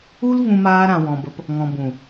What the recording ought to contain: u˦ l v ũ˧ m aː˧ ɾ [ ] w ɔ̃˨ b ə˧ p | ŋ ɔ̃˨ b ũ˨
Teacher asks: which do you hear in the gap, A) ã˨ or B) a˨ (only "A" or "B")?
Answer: A